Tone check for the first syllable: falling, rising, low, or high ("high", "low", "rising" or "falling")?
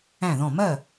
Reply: falling